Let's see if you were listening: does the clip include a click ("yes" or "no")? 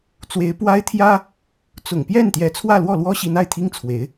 no